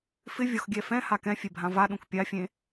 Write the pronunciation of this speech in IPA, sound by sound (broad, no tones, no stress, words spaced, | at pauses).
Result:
fɪ vʲɔxɡʲɛfɛ̃ha kɛ̃fʲebʱã vaɗũk pʲafʲẽ